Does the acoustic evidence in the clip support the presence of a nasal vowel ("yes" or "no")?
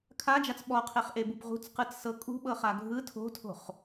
no